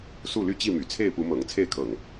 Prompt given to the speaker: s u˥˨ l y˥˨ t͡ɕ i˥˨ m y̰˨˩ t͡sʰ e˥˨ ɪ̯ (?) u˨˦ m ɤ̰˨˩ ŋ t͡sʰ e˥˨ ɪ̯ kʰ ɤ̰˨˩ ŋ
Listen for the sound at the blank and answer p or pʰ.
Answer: p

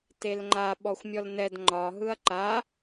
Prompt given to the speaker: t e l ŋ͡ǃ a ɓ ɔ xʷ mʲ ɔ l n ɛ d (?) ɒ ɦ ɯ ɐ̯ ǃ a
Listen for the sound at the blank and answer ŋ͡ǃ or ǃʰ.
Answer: ŋ͡ǃ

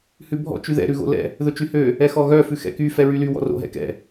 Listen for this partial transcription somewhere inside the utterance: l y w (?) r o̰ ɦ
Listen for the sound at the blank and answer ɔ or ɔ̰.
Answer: ɔ̰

